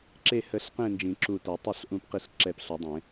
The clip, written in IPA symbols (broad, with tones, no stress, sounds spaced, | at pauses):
ǁ e˧˩ h ə˨˩˦ ɬ q ẽ˧˩ n d͡ʒ ĩ˨˩˦ ǁ u˧˩ t ɛ˨˩˦ tˤ ʌ˧˩ ɬ ʔ ũ˨˩˦ p q i˨˩˦ ɬ ǁ ɛ˧˩ p ɬ o˨˩˦ dˤ ẽ˨˩˦